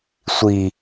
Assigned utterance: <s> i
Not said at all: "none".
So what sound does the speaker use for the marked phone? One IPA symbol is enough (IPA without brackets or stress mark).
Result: sʷ